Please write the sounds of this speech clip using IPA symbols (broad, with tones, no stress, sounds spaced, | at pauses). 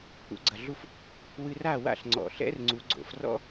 k͡p ṵ˩˧ ɡ͡ǀ ɐ˩ ɮ u˧ f | w ɨ˧ r a˥˨ w a̰˥˨ ɬ ŋ͡ǀ ɔ̰˩ ɬ ɛ̰˧ r ŋ͡ǀ u˩˧ ɡ͡ǀ o̰˩˧ f r ɔ̰˥